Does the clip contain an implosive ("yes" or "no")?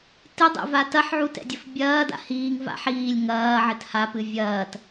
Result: no